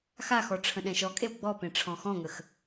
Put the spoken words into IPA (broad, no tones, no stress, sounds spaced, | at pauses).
x a x ɔ ʈ͡ʂʰ ə̃ ɗ ɛ̃ ʃ ɔ kʼ e w ɡ͡b ɔ p ẽ ʈ͡ʂʰ ɔ̃ x ɔ̃ ŋ ə x